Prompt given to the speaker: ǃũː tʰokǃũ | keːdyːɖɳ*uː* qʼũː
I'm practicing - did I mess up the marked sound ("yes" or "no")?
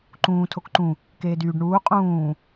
no